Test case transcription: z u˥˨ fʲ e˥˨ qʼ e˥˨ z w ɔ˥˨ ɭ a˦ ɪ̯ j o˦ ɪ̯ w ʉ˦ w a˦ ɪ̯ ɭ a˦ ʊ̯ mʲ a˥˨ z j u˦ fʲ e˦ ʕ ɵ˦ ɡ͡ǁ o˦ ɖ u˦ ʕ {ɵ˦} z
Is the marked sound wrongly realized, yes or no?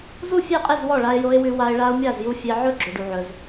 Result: no